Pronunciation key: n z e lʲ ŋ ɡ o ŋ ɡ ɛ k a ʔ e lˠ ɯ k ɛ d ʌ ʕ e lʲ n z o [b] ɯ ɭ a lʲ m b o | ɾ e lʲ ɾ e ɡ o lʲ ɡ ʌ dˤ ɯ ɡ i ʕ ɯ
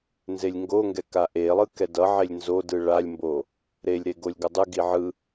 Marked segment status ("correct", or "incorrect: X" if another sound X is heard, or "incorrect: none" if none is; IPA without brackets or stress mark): incorrect: d